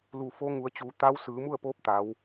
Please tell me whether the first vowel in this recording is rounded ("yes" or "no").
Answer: yes